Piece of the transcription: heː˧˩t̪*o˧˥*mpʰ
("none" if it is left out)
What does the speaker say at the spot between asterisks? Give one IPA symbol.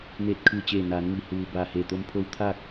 o˧˥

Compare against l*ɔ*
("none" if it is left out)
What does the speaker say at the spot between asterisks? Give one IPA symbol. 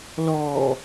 ɔ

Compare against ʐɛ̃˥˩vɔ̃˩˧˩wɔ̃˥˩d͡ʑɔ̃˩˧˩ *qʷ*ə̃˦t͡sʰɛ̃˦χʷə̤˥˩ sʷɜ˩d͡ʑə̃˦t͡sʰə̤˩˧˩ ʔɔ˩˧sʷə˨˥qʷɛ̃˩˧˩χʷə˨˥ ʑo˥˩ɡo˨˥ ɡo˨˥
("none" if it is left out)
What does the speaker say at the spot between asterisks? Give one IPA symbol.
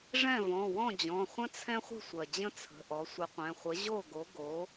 χʷ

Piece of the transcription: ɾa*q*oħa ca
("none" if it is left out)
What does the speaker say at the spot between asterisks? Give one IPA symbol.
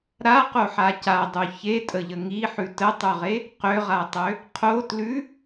q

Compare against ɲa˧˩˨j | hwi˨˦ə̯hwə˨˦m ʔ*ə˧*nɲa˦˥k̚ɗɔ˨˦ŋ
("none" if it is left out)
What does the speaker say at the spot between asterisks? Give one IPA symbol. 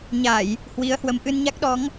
ɨ˧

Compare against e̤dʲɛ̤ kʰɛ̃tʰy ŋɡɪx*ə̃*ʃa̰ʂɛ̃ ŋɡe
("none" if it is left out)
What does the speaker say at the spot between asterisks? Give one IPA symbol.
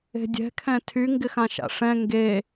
ã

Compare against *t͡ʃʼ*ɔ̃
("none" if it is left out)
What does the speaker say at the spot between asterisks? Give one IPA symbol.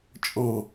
t͡ʃʼ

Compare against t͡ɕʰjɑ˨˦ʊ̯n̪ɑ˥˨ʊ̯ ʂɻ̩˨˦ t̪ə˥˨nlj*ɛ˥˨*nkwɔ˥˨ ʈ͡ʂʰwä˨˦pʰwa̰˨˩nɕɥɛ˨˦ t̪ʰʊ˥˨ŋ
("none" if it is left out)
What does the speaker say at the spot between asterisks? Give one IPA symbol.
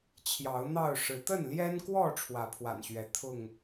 ɛ˦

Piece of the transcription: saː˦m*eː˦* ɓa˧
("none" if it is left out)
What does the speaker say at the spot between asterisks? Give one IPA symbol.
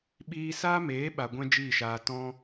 eː˨˦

